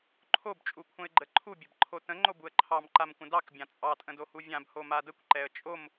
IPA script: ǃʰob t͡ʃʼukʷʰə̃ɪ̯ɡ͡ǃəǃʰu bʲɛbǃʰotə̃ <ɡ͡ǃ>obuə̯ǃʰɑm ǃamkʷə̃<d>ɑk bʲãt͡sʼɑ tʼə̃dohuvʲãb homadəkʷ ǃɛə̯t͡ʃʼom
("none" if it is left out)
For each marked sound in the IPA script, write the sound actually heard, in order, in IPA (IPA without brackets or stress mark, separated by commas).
ŋ͡ǃ, d